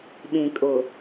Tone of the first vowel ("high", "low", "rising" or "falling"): low